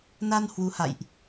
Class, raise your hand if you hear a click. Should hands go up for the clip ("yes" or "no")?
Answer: no